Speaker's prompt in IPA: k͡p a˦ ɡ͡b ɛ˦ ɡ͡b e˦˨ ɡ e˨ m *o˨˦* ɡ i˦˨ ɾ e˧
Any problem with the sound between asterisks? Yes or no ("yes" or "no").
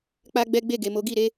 no